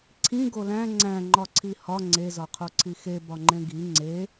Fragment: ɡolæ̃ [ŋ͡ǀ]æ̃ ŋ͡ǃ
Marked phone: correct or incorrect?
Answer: correct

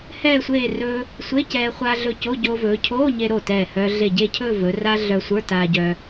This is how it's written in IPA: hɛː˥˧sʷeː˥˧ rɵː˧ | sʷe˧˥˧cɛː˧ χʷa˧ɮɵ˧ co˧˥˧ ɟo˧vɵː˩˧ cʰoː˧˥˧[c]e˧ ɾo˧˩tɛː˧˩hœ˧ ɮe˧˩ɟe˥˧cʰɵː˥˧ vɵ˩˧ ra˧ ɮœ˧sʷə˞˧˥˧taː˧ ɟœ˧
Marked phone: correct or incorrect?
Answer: incorrect: ɲ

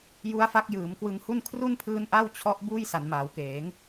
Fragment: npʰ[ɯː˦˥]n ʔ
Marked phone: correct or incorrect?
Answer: correct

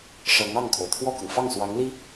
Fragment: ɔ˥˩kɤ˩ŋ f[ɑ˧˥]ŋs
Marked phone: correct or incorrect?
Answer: incorrect: ɑ˥˩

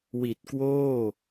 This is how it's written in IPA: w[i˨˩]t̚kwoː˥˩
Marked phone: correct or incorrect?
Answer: correct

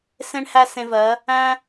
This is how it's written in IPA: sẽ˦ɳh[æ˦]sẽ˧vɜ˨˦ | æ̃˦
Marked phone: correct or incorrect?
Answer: correct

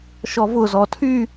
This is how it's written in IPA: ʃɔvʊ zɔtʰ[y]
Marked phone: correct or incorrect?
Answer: correct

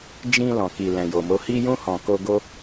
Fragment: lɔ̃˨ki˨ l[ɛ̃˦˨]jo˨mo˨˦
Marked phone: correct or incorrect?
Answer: incorrect: ɛ̃˨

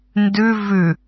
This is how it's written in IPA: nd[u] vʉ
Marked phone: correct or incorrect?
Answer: incorrect: ʉ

